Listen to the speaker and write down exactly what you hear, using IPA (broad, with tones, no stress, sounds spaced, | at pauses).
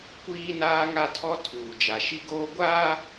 kʷ iː˦ n aː˦ ŋ a˦ tʰ ɔ˦ tʰ uː˨ d͡ʒ a˨ ʃ i˦ ɡ oː˦ ɡʷ aː˦